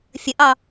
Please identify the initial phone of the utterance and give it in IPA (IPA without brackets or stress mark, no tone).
fʲ